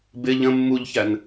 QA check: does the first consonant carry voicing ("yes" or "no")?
yes